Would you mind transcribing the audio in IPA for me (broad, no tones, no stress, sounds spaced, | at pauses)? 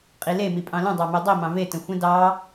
qʼ i l e m i pʼ ɑ̃ l ə̃ dˤ ɑ m e dˤ i m ɑ̃ v e t ə̃ xʷ ə̃ d ɑ